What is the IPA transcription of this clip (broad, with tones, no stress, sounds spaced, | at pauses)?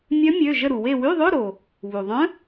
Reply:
mʲ œ˧˥ mʲ ø˩˧˩ ʒ ə˦˨ ɾ u˩ w e˦˨ w y˧˥˧ ðˤ ø˧˥˧ ɾ o˩ | β u˩ ðˤ œ̃˧˥